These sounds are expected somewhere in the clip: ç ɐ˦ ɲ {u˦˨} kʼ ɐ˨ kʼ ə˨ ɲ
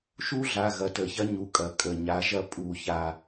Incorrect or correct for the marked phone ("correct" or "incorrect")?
incorrect